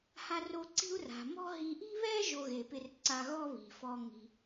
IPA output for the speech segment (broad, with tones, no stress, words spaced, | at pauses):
ha˧ro˧ ǀi̤˥u̯ra̤˩ mɔ̤˥ɦi˧ ʔi̤˥βɛ˥ ʒo˧ɣe˩pɪ˧rǀa˧ ɣɔ˥βi̤˩fɔ˧ ŋi̤˩